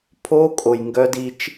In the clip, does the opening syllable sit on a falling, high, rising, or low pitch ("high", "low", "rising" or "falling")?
high